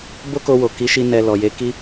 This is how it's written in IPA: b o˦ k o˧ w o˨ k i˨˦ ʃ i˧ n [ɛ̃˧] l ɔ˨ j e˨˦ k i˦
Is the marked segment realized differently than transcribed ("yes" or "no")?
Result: yes